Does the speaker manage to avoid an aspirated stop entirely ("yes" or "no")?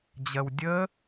yes